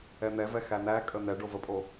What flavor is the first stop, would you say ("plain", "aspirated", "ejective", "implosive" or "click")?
ejective